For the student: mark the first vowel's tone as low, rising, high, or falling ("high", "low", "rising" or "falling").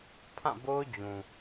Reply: falling